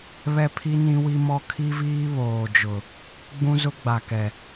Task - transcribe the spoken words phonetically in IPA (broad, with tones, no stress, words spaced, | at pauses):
βɛ˦pʰi˦ nĩ˦wi˦mɔ˦ kʰi˦viː˦βoː˨d͡ʒʊ˨ | ɡ͡bũ˦zʊ˦ɡ͡ba˨kɛ˨